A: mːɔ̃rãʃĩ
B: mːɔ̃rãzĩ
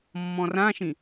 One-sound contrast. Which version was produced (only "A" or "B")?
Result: A